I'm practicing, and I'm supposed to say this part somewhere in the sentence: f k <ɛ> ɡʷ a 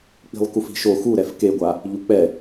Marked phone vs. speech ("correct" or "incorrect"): incorrect